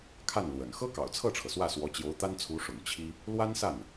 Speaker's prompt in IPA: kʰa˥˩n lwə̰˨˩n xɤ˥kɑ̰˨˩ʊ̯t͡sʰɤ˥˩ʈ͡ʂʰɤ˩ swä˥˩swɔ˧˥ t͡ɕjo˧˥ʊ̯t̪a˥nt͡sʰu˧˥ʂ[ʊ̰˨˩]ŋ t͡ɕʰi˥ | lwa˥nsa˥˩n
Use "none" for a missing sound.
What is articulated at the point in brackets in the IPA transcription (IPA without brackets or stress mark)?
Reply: ʊ̰˨˩